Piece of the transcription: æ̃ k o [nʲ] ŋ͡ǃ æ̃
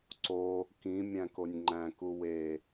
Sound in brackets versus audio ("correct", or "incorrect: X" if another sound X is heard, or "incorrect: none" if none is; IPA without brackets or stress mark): correct